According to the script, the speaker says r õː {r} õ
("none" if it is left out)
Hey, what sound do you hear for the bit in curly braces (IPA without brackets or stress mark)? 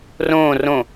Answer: r